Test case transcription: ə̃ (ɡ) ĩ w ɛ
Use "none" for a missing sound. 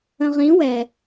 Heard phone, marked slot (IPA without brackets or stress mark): ʁ